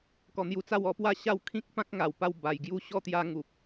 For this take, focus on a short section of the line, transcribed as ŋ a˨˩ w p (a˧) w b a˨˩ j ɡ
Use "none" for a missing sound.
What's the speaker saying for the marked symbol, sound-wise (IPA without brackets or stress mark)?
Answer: a˧